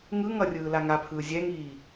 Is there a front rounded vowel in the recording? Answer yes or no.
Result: no